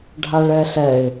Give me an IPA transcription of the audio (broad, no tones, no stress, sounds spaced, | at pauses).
ɖʱ a ɭ ɛ ɬ ɛ ɪ̯